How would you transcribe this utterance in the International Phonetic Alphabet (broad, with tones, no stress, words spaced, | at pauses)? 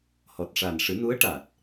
hɔ˨˩t̚ʂa˨˩n ʂɨ˨˩˦nu˧˥ə̯ʈa˨˩t̚